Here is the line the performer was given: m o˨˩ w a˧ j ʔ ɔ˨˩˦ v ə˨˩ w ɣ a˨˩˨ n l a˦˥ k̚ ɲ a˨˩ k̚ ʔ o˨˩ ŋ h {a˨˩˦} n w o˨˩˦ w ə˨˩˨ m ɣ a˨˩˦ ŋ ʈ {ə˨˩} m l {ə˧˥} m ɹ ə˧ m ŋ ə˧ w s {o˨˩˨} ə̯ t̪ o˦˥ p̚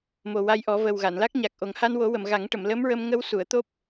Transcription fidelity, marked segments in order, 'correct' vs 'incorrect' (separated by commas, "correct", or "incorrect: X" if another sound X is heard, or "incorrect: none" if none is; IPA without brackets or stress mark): incorrect: a˧, incorrect: ə˨˩˨, correct, incorrect: u˨˩˨